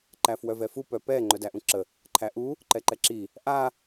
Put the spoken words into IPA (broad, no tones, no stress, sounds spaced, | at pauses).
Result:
ǃ æ f w œ v ɛ f u p œ p ɛ ŋ͡ǃ œ d æ ʔ ũ ǁ ə | ǃʰ æ ʔ u | ǃ ɛ ǃ ɛ ǁ i | ʔ a